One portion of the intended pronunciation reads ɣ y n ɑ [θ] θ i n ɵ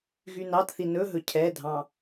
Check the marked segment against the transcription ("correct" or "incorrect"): incorrect